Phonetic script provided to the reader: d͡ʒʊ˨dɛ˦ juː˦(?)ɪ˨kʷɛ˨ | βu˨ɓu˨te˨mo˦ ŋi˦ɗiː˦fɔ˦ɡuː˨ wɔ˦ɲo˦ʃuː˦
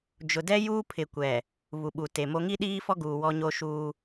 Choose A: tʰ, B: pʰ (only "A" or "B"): B